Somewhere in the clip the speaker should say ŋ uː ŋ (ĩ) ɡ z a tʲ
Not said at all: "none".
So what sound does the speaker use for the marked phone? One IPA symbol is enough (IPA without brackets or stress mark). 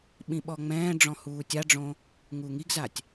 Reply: i